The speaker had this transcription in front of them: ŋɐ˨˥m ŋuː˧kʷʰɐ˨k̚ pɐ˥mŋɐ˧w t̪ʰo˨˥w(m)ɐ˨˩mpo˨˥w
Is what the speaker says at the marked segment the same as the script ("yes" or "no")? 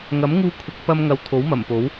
yes